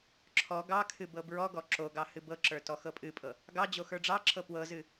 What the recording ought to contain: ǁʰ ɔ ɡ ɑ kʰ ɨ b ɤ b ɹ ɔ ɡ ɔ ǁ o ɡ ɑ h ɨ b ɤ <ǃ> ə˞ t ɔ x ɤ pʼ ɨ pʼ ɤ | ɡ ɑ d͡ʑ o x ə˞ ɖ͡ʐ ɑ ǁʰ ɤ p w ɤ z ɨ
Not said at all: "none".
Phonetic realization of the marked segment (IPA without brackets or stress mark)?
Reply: ǁ